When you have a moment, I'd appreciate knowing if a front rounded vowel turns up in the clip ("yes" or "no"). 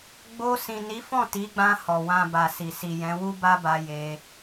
no